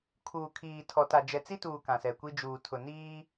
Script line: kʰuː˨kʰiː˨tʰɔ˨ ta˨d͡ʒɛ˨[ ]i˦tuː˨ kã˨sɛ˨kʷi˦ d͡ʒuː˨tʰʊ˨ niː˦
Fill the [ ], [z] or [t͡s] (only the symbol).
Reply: t͡s